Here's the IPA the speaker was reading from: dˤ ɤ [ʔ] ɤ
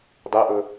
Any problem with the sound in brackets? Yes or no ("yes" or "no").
no